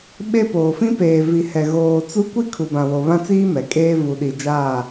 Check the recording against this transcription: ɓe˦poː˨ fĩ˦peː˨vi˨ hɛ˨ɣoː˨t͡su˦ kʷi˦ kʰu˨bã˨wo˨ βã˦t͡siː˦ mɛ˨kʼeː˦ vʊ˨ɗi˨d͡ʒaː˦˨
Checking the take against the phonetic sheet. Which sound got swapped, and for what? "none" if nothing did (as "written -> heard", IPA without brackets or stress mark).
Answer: ʊ˨ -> u˨